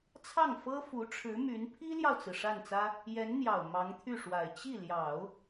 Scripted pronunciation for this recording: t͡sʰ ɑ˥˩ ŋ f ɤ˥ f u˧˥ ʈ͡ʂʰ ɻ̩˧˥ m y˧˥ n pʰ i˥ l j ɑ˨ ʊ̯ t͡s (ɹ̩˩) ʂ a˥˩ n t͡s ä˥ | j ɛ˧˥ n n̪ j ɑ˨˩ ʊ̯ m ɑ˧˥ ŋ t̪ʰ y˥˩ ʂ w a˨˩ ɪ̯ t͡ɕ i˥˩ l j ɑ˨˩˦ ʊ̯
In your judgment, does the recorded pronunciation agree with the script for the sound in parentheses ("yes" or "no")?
yes